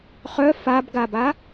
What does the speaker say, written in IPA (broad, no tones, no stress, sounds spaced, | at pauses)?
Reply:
χ œ f a b ɡ a b a